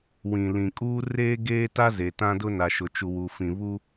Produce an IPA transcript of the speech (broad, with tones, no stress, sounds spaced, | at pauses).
w ĩ˨ l ĩ˨ kʼ uː˦ r eː˦ ɡ eː˦ t a˦ z e˨ t ã˦ d ʊ˦ n a˨ ʃ ʊ˨ t͡ʃ u˨ w uː˨ f ĩ˨ β u˦